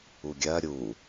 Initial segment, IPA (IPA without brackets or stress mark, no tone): u